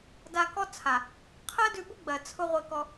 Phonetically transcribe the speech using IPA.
da˧kɔ˦ t͡sʰa˨ | qʰɜ˦dʉ˧bʊ˦ɡ͡bɜ˨ t͡sʰʊ˧ ʁʷe˧kɔ˧

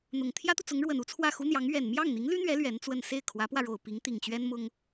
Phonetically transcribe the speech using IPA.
n̪ʊ˨˩ŋ t̪ʰjä˥t̪u˨t͡sʊ˧˥ŋɻwə˨˩n u˥t͡sʰwä˥˩xu˥n̪jɑ˧˥ŋ ɥɛ˨˩nmjɑ˥˩ŋn̪i˧˥ŋ ly˥n̪ɥɛ˧˥ lɥɛ˧˥nt͡swə˥˧n se˥˩ɪ̯kʰwä˧˥pwä˧ɻo˨˩ʊ̯ pi˧˥ŋt̪i˨˩ŋt͡ɕɥɛ˥n mʊ˥ŋ

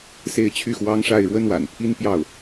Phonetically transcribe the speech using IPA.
se˥˧ɪ̯t͡ɕʰy˥˩xwɑ˥ŋ ʂa˥˩ɪ̯ɻwə˥nwa̰˨˩n pʰi˥npjɑ˥˩ʊ̯

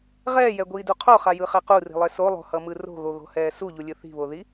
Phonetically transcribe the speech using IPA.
ʁɛːjɛɡʷiːdu qʰoχajɯχɛ quri̤lˠe solˠo̤hʌmɯ ro̤ɣoɣo̤hɛː suʎulʲɯ θi̤βoði

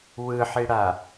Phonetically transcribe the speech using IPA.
wɯħiɽa

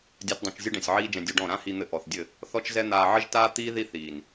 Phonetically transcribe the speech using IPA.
dʲa˦tdˤũ˧t͡ʃ zʲɘ˦ɖɛ̃˨sʲʕiː˦d͡ʒɛ̃˧ dʲu˧ɖɔ̃˦˨ ɾã˦hi˧n̪ɘ˧ ʔɔ˨θdʲɘ˦˨ | θɔ˦t͡ʃzɛ˦ n̪aː˧ ʕɘ˦ʒtaː˦t̪iː˦ ði˦θiː˨n

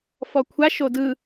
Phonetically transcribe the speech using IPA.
fɔkʷʰa ʃodɯ

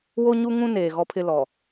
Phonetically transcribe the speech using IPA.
wo˦ɲu˦ŋũ˦ neː˨ɣɔ˦pʰɪ˦ lɔ˨

